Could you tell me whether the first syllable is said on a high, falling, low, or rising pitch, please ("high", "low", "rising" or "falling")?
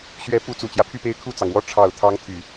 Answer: rising